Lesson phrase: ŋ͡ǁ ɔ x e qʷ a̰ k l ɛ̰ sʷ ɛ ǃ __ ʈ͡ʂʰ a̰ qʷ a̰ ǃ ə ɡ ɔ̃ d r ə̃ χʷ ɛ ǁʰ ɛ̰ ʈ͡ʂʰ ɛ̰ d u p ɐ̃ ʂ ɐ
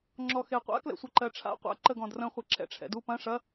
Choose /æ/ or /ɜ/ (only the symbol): ɜ